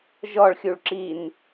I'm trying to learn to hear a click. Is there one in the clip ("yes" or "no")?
yes